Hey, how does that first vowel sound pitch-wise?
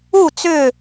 falling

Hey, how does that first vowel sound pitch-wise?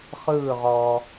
falling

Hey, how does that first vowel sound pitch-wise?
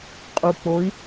low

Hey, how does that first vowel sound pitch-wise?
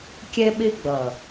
high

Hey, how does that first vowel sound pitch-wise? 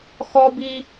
high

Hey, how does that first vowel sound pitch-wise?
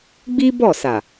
high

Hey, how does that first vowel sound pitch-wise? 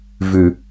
low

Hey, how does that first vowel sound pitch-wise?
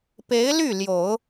rising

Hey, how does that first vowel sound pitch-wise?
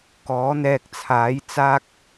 rising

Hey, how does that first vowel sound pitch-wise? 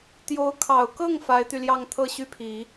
rising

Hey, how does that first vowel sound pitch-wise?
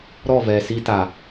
falling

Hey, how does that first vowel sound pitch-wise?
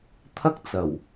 high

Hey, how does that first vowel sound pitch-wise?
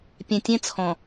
low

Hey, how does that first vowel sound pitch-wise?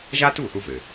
high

